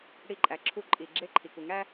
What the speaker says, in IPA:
ɽ i˧˩˧ ǃʼ æ˩ ǁʰ u˧˩˧ ǃʼ i˩ ɡ͡ǁ e˦˨ ǃʰ i˩ k u˩ ŋ æ˥

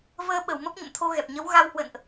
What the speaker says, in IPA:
v əː˧ ɓ ə˧˩ w m ə˦˥ p̚ ɲ ə̰˧˨ m t̪ʰ o˧ ɣ ɛ˨˩ p̚ ɲ ə˨˦ w ɣ a˧ w h w ə̰˧˨ n ʔ

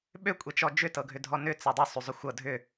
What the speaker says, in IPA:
ɓ ø kʷʼ e t͡ʃ ɔ d͡ʒ ʏ t ɤ ɡʱ ʏ dʱ ɔ n ʏ t͡s ɤ dˤ ø sˤ y zˤ ʏ xʷ ɤ dʱ ʏ

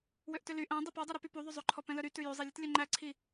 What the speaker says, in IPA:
w ø ʔ t ø l y ʔ æ̃ dˤ i p ɔ dˤ œ ɾ u p y p u ðˤ y zˤ ø ǃʰ ɔ p ɛ̃ l œ ɾ y t ʉ j ʉ zˤ i lʲ ɛ t lʲ œ ŋ͡ǃ æ ǀʰ i

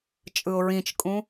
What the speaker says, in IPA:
t͡ʃʼ ɯ ʊ̯ ɹ ĩ t͡ʃ kʼ ũ

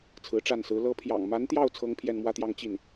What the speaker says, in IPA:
t͡sʰ ɹ̩˧˥ ʈ͡ʂ a˥˩ n s ɹ̩˧˥ l ɤ˧˥ pʰ j ɑ̰˨˩ ŋ m a˧˥ n t̪ j ɑ˥˩ ʊ̯ t͡sʰ ɤ˥ ŋ pʰ j ɛ˥˧ n m w ä˥˧ t̪ j ɑ˥˧ ŋ t͡ɕ i˥˩ n

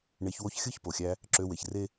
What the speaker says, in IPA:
ɳ e˧ ç w o˦ ç xʲ ɯ˦ ç p o˨ xʲ æ˧ | ǁ ø˧ w e˨ ç r e˦

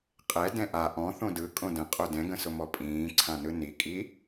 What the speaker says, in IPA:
qʼ ɛ d ɛ̃ ʔ a ʔ ɔ̃ θ õ d ɯ kʼ õ d ə̃ qʼ o d ɛ̃ ɡ ə̃ s ʊ m ɔ pʼ ĩː ǀʰ ã n ɯ n i kʼ i

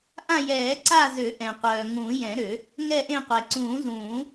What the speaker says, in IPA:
ʔ ã˦˨ j ɛː˨˩˦ ǀ a˦˨ z ø˨˩˦ ʔ ɛ̃˩ qʷ œː˩ ŋ ũː˨˩˦ j ɛ̃˨˩˦ ɾ ø˨˩˦ | ŋ ɛ˦˨ ʔ ẽ˦˨ qʷ ɛ˩ ǀ ũː˨˩˦ z ũː˨˩˦

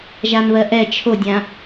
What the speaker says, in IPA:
ʒ a n β ɜ ʔ ɛ t͡ʃʰ o dʲ ã

